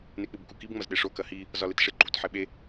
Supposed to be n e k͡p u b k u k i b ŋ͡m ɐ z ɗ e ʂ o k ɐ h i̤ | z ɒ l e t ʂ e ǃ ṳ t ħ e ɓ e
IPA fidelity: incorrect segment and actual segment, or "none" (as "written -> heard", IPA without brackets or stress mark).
i̤ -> i